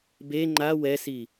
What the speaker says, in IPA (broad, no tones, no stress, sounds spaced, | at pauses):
b e ŋ͡ǃ a w ɛ s i